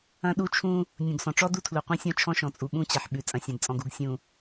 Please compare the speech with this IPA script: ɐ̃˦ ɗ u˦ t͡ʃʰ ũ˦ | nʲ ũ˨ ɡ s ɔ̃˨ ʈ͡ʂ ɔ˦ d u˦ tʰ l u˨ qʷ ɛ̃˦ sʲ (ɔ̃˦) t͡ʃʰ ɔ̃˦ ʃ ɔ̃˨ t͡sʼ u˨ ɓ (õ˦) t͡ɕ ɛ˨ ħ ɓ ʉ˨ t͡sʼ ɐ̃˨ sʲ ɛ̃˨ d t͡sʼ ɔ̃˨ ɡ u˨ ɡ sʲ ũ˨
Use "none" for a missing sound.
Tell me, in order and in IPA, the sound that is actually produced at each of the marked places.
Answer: ɔ̃˦, ũ˦

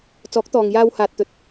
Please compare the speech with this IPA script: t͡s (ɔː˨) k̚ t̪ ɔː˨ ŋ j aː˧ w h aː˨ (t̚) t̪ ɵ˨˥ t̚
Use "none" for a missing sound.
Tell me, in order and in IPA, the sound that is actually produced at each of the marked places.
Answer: ɔː˨˥, t̚

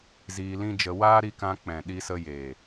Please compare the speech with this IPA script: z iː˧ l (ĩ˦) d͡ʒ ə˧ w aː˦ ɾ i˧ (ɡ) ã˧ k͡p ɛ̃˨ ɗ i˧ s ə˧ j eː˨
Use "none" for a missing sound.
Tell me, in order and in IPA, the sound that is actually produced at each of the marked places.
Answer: ĩ˦, k

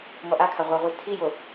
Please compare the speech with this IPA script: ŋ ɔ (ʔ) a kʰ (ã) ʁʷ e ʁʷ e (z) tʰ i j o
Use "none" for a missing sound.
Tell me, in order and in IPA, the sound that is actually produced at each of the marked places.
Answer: ʔ, a, z

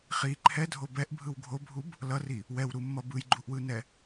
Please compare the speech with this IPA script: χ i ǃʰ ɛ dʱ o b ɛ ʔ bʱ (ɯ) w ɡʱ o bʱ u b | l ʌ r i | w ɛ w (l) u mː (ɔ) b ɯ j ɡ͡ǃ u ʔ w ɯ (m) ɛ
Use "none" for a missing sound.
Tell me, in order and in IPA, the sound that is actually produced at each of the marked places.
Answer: ɯ, ɾ, ʌ, n

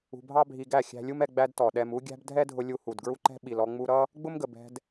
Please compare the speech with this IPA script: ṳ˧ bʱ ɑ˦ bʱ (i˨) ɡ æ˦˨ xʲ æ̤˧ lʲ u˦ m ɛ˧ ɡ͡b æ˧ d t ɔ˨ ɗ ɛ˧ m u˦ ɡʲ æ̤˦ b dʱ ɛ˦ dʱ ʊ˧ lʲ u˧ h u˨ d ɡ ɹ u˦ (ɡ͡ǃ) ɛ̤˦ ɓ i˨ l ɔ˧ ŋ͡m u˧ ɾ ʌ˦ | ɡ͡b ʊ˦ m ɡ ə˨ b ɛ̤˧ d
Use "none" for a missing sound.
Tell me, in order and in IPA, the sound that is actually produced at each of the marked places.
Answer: i˧, ǃ

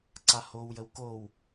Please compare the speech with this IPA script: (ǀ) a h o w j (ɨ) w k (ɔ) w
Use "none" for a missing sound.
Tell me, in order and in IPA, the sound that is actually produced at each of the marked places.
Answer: ǀ, ə, o

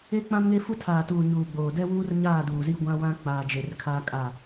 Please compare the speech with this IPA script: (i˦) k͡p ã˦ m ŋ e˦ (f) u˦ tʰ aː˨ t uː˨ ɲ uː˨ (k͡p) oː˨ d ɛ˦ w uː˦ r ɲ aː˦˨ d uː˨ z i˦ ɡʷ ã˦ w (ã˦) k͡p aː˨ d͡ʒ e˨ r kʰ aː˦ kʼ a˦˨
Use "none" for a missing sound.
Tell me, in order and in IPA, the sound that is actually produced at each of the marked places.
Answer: e˦, f, ɡ͡b, ã˦

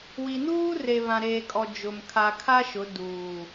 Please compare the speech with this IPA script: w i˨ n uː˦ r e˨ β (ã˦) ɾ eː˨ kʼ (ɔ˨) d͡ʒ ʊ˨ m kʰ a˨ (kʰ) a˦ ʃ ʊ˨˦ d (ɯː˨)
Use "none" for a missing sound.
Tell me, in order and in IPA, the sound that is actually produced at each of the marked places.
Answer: ã˨, ɔ˨, kʰ, uː˨

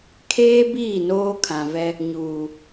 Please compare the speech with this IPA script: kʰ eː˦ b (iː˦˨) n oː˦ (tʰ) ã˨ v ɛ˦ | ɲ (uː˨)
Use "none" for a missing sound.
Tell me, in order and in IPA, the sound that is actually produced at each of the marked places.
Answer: iː˦˨, kʰ, uː˨

